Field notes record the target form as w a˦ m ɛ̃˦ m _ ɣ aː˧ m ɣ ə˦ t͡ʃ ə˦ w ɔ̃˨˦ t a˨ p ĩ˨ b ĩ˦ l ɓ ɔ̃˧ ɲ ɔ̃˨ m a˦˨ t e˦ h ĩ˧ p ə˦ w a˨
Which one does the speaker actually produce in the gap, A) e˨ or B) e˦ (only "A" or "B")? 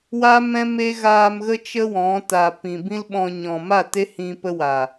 B